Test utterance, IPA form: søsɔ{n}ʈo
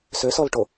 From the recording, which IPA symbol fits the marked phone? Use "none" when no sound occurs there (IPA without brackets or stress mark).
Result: l